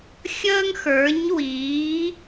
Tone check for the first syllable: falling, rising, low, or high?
high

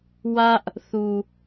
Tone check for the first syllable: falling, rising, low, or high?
high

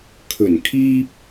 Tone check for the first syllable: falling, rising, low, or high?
low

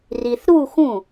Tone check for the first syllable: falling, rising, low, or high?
low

